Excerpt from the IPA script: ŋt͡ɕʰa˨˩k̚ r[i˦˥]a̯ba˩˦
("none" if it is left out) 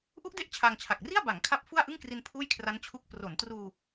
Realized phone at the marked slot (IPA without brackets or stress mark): i˥˩